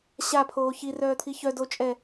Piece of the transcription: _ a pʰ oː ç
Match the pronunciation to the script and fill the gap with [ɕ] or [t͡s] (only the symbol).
ɕ